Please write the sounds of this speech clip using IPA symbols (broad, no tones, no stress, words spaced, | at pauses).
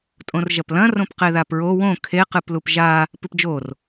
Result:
tʼõrʒɐplɐ̃ rõpqeðapɹo wõ kʰe qɨplupʒa | pɨpd͡ʒor